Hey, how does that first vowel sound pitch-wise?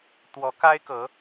rising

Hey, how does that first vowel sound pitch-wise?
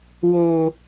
low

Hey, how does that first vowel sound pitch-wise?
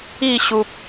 falling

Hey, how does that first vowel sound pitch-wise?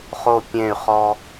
falling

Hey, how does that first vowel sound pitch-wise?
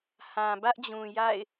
low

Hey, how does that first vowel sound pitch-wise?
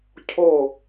falling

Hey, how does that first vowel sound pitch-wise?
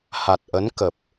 low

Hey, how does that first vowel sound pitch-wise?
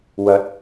rising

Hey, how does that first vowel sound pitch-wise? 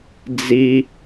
high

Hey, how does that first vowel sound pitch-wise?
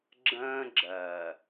high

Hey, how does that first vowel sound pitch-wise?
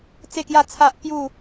falling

